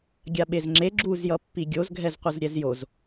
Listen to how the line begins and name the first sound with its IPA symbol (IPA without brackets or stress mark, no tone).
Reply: ɡʲ